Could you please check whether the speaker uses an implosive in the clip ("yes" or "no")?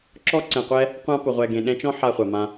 yes